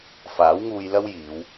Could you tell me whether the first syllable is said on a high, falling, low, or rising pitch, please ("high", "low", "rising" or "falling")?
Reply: rising